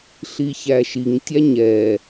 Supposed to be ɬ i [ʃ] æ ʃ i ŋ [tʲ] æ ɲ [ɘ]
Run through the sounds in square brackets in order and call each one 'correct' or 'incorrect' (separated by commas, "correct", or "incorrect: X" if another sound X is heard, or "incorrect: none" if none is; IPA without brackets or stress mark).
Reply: incorrect: ç, correct, incorrect: ɛ